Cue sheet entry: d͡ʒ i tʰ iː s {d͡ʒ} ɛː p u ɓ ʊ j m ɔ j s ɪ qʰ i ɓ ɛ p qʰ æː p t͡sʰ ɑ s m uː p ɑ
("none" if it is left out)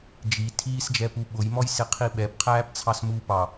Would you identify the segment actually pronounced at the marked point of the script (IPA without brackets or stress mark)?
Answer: d͡ʒ